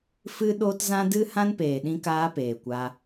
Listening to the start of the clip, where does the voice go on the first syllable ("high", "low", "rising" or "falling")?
high